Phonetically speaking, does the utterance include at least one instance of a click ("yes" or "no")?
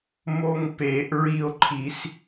yes